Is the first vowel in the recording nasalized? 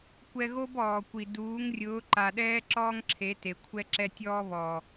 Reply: no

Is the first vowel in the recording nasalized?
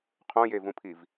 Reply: yes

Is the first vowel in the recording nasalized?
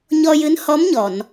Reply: no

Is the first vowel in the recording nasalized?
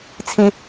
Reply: yes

